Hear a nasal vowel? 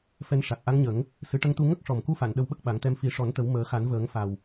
no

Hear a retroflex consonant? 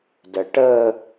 yes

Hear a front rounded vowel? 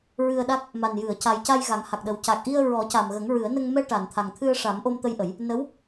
no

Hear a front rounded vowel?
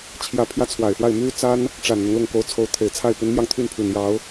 yes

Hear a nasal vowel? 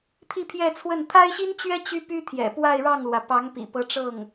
no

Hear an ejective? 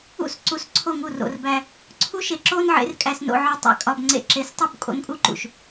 yes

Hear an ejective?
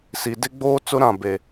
no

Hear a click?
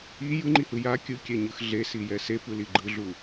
yes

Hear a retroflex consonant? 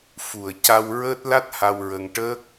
yes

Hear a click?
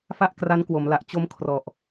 no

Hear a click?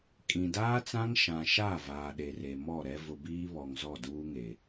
no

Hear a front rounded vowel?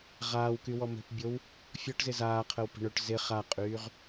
yes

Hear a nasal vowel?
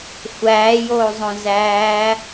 yes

